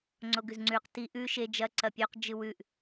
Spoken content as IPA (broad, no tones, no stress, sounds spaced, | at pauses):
ŋ͡ǀ o ɡ ʉ z ŋ͡ǀ ʉ q t i ʔ ʉ ʃ e d͡ʒ ɐ ǀ ɐ pʲ o q d͡ʒ ɨ w ʉ ʔ